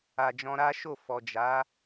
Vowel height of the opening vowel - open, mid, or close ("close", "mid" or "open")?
open